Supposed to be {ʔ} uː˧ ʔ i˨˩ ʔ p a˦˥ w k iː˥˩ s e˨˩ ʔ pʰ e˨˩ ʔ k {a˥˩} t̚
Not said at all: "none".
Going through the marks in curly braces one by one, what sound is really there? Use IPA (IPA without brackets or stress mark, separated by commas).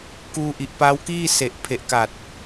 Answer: k, a˨˩